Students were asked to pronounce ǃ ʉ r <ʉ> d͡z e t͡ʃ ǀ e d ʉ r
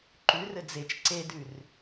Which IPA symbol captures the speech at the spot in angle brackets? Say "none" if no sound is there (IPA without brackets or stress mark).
ɘ